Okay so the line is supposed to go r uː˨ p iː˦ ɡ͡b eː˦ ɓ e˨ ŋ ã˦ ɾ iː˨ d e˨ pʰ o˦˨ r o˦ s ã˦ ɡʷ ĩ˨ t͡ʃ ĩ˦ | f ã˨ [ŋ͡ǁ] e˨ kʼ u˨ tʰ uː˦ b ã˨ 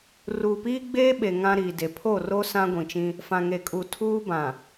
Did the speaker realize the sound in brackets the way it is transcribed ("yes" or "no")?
no